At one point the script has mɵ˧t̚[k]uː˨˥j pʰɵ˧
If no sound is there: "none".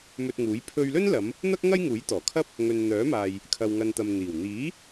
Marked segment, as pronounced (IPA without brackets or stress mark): ŋ